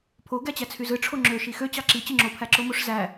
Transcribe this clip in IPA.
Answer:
pʰ o ɡ æ t͡ɕ æ t͡sʰ y z ɯ ʈ͡ʂʰ o ŋ͡ǁ ø ʃ i x ø t͡ɕ ɑ ǁ i t͡ɕ ɯ ŋ͡ǁ o pʰ æ ǁ o m o ʂ z æ

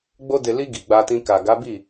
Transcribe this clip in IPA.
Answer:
ɡ͡b o˧ d e˨ l i˧ ɡ i˨ ɡ͡b a˧ t ĩ˧ k a˨ ɡ a˨˦ b i˦˨

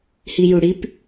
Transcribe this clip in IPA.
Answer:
h i j u ɽ i p

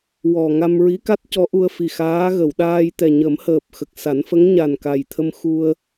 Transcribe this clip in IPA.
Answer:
w ɔ˨˩ ŋ a˧ m ɹ i˧˥ k a˦˥ t̚ c ɔ˧˥ ʔ u˧ ə̯ f i˨˩ x aː˧˥ ɣ ə˨˩˨ w ɗ aː˧ j t̪ ɛ˨˩ ɲ ə˨˩˦ m h əː˨˩ p̚ x ə˨˩ k̚ s a˨˩˦ n f ə˧˥ ŋ ɲ a˨˩ n k a˨˩ j t̪ʰ ə˧ m x u˧ ə̯

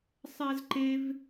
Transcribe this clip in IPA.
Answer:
sˤ æ z ǃ e v

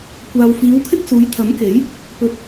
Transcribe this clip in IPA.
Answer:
kʷ aː˨ w f iː˨˧ w kʰ ɪ˥ k̚ s uː˨˧ j t̪ʰ ɐ˨˥ m k e˨˥ j | p ɵ˧ t̚

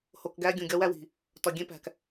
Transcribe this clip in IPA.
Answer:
h o˨ k ɡ æ˦ ɡʲ ũ˨ ɡʲ ɒ˦ w æ˦ w i̤˨ | t ɒ˨ ɡʲ ẽ˦ p æ̤˨ k

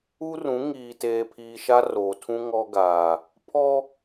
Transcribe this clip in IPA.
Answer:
u˦ r ũ˨˦ ŋ iː˨ t eː˨ pʰ iː˨ ʃ a˦ r oː˨ tʰ ũ˦ ŋ ɔ˦ ɡ aː˨ | pʰ ɔ˦

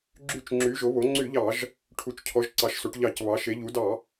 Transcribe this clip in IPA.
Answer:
ɡ͡ǁ y˧˩˧ t͡ʃ ŋ͡ǁ y˩˧ ʒ o˩˧ β o˩˧ ŋ͡ǀ y˧˩˧ ʎ ɑ˧˩˧ ʒ | ʈʰ u˩˧ t͡ʃ cʰ ɔ˩˧ ʒ ǀ ɑ˩˧ ʃ s o˩˧ ʈ ʎ ɑ˧˩˧ c β ɑ˩˧ ʃ e˩˧ ʎ u˩˧ d ɑ˧˩˧

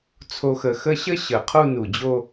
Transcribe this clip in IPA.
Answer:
t͡sʰ o˧ x ə˧˩ x ə˥˧ ɕ ə˥ ɕ ə˧˩ qʰ u˥˧ n u˧˩ d͡ʑ o˥˧

